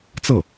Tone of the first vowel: falling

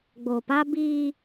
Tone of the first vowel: low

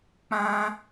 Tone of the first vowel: high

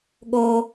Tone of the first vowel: low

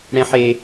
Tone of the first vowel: high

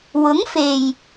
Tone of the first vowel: rising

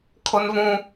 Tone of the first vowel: high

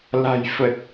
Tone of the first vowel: low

